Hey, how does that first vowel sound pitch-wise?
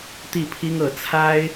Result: falling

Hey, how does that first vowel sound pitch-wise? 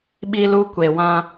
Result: high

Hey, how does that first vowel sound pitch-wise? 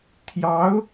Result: rising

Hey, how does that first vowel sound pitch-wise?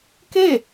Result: falling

